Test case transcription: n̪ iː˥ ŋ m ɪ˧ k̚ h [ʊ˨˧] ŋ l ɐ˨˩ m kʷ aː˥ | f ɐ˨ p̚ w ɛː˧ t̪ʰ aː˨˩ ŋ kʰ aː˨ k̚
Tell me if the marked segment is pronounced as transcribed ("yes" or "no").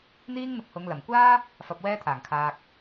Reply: yes